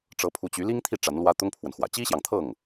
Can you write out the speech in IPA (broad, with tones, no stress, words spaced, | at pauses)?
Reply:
ʈ͡ʂɤ˧˥pʰu˧˥t͡ɕy˧˥ li˥ŋt̪ʰi˥˩ ʈ͡ʂa˧˥nlwä˥ t̪ʊ˥ŋpʰwə˨nxwä̰˨˩ t͡ɕi˥ɕjɑ˨ŋt̪ʰɤ˥˩ŋ